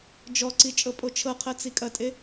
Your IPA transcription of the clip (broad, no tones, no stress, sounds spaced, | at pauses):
d͡ʒ ɔ ǀ i t͡ʃʼ ɤ pʼ o t͡ʃʰ ɤ qʰ ɜ t͡s i kʼ ɐ tʼ e